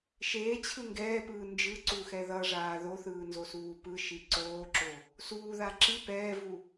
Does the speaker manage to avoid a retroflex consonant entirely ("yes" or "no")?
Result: no